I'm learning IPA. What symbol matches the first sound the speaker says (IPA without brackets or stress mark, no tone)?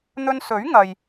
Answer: n̪